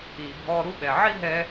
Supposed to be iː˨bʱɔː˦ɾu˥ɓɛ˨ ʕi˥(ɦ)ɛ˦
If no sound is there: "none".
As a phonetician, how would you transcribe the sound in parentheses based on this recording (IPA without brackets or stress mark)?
ɦ